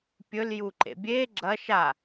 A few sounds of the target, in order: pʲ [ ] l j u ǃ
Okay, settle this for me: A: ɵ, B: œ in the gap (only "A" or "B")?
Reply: A